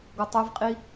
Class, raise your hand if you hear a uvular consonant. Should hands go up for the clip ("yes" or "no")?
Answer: yes